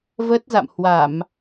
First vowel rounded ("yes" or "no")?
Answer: no